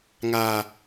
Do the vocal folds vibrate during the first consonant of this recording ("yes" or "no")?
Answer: yes